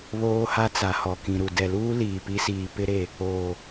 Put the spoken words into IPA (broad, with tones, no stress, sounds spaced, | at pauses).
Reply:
β oː˦ h a˦ t͡s a˨ h ɔ˨ k ĩ˨ ɾ u˨ d ɛ˨ l uː˦ l iː˨ p i˦ s iː˨ p ɪ˦ ɾ e˨ | oː˨